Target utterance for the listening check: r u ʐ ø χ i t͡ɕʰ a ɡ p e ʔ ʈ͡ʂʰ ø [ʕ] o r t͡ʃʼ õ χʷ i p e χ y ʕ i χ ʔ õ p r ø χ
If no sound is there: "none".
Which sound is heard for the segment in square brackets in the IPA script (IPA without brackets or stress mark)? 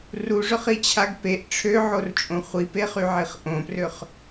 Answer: ʕ